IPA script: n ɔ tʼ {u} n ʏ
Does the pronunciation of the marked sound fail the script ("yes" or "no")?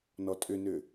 yes